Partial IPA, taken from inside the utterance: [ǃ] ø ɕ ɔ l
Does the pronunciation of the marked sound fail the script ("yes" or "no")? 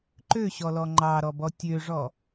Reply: no